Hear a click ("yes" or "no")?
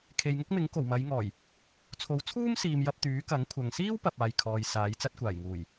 no